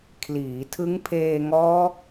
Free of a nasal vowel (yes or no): yes